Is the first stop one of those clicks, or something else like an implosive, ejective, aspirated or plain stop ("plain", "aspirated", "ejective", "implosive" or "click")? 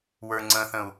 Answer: click